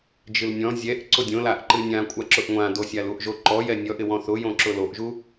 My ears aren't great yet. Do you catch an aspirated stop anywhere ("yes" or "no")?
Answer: no